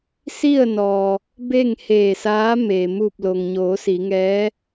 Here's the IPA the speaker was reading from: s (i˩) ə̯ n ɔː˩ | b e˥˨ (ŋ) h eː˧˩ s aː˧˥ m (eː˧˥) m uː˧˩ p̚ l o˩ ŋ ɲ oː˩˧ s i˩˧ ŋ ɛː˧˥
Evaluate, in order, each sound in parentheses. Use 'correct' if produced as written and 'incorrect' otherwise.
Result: incorrect: i˥˨, correct, incorrect: eː˩

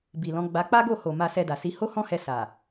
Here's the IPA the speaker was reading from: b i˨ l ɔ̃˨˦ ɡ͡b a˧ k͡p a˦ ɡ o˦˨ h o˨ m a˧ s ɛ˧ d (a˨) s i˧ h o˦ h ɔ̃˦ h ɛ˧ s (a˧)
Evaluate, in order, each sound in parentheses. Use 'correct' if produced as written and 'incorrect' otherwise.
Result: correct, incorrect: a˨

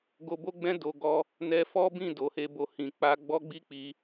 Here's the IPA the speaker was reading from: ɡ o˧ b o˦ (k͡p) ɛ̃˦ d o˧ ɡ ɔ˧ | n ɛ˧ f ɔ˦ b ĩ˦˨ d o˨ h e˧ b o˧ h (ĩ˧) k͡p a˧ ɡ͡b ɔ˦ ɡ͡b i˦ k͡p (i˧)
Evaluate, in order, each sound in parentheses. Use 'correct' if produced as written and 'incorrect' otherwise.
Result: incorrect: ɡ͡b, incorrect: ĩ˨, correct

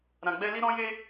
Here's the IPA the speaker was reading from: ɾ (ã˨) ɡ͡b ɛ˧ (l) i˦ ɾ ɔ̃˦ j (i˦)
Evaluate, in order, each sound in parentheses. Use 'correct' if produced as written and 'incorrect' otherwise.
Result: correct, correct, incorrect: e˦

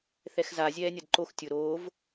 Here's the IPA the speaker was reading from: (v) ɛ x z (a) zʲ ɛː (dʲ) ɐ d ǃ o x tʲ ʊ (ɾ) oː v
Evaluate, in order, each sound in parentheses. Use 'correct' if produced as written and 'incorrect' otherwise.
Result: incorrect: θ, correct, incorrect: nʲ, correct

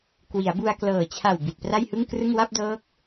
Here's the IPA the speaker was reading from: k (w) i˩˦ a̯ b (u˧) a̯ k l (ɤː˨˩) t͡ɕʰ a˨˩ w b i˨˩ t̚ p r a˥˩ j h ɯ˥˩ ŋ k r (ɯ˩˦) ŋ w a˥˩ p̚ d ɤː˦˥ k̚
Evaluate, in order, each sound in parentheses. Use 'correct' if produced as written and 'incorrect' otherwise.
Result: correct, correct, correct, incorrect: ɯ˥˩

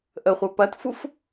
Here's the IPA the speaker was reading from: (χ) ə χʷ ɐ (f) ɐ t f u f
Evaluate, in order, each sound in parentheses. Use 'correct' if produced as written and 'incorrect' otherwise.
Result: incorrect: ʔ, incorrect: p

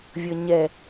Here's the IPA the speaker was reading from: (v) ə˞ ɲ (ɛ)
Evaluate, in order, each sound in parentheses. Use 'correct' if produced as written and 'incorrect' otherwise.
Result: incorrect: vʲ, correct

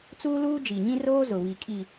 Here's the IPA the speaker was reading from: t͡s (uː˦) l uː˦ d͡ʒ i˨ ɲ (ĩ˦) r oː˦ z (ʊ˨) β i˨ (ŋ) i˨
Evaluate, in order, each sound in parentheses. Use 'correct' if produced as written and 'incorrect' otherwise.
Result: correct, correct, correct, incorrect: kʼ

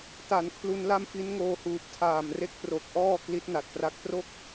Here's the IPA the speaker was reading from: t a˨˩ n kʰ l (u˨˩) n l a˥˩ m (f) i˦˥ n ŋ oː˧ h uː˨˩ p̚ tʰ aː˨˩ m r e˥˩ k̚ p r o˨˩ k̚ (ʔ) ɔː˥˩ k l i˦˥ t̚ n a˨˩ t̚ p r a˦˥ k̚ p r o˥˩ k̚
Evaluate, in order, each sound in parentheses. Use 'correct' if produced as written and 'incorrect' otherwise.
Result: incorrect: u˧, correct, correct

